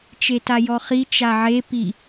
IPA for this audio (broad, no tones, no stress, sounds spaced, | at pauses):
t͡ʃ e t a j ɔ χ i t͡ʃ a ʕ e p i